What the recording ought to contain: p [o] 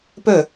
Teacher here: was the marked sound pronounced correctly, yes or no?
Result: no